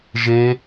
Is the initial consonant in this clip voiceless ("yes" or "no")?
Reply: no